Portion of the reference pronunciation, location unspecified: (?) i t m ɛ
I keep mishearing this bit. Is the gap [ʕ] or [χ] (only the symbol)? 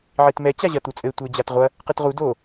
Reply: ʕ